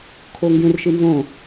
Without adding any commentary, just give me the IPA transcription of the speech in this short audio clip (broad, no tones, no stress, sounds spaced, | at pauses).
kʰ o ŋ ɡ ẽ r ʃ ɨ n z õ